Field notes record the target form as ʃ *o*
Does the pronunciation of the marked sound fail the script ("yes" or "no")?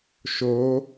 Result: no